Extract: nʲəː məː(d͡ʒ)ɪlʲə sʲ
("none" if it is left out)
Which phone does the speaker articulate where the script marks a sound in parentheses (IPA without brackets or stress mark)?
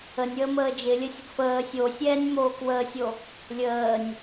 d͡ʒ